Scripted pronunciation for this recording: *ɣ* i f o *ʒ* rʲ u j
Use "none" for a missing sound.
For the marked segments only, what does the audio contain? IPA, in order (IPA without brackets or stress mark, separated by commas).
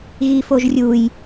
ɣ, ʒ